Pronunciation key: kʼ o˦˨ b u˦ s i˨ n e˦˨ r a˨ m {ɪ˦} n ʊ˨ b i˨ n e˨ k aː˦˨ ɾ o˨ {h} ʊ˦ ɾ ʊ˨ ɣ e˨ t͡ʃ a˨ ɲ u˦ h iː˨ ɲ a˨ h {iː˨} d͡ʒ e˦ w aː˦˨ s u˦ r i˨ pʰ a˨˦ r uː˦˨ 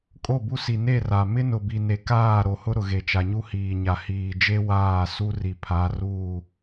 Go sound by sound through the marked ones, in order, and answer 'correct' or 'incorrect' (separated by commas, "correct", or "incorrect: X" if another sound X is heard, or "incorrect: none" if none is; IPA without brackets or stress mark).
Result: correct, correct, correct